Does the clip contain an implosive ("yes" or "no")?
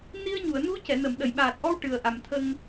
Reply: yes